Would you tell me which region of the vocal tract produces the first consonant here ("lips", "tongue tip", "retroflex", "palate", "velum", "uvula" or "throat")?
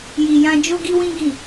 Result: palate